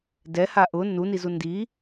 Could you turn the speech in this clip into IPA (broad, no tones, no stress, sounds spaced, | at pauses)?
d ɛ h a ʔ ʊ n u n i z u n d i